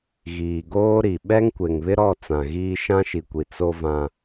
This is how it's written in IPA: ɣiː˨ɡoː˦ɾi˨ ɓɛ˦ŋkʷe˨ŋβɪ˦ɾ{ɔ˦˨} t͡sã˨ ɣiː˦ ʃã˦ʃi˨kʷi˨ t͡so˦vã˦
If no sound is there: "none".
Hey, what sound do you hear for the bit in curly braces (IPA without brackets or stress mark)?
ɔ˦˨